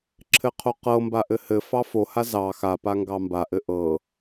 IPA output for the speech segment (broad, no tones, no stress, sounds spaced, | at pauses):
ǁʰ ɘ qʰ o q ɤ m b a ʔ ɘ h ɘ f ɑ f o h a z ɑ x a p a ŋ ɡ ɑ m b a ʔ ɘ ʔ ɤ